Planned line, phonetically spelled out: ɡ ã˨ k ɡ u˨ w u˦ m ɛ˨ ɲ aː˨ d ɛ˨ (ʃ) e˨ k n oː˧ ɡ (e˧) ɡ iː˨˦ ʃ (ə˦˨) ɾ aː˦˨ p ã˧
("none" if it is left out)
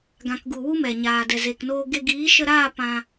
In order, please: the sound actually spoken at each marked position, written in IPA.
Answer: z, e˧, ə˧

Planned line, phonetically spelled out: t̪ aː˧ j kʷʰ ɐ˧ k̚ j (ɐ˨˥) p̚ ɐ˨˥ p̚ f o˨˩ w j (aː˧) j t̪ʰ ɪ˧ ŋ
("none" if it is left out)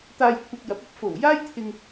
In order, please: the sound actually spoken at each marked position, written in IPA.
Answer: ɐ˨˥, aː˥

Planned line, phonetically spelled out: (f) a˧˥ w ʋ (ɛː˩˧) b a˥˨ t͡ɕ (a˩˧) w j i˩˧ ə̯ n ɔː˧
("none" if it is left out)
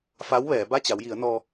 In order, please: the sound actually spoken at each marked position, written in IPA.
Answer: f, ɛː˩˧, a˩˧

